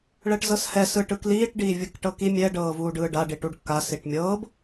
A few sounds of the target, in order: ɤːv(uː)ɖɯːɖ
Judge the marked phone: correct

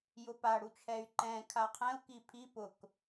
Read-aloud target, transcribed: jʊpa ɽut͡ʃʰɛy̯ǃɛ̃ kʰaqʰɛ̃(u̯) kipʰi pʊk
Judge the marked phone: correct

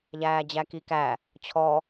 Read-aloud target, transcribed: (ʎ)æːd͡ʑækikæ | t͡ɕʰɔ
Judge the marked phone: correct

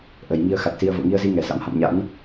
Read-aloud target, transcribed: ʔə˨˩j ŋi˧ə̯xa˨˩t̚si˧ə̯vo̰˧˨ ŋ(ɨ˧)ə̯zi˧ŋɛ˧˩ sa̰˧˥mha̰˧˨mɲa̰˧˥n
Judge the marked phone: incorrect: i˧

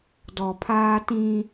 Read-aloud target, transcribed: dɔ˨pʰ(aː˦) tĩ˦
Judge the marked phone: correct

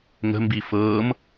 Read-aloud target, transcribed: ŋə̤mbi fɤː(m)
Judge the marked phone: correct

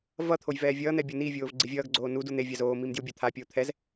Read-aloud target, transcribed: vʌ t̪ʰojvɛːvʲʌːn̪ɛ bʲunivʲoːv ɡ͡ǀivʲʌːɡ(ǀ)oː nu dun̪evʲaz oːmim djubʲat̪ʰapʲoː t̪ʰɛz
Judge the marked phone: incorrect: ɡ͡ǀ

